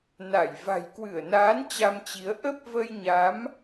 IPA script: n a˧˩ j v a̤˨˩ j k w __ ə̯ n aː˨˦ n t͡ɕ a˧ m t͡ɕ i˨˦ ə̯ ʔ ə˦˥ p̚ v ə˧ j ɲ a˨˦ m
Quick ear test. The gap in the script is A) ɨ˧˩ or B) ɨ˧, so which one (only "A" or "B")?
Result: A